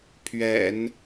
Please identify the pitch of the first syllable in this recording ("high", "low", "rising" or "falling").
low